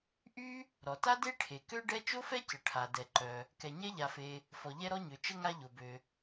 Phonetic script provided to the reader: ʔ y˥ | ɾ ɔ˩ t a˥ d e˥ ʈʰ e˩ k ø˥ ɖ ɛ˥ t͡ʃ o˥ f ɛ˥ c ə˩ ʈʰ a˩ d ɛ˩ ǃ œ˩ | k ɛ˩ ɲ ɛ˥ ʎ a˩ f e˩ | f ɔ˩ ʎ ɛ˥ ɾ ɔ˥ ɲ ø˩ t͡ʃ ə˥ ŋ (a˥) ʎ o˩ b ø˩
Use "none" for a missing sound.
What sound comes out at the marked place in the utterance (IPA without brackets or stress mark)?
a˥